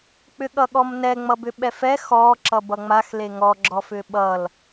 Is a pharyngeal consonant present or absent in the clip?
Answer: absent